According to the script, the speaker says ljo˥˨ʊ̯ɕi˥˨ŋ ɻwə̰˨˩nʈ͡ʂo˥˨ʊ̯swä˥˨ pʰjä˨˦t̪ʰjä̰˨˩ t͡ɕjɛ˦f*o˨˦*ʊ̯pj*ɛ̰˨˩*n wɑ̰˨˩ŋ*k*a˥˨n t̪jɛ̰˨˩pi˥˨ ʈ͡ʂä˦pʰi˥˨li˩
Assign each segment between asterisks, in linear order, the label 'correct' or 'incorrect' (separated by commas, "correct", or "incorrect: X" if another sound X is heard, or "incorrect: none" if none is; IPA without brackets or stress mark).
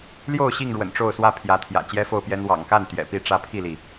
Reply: incorrect: o˥˨, incorrect: ɛ˦, correct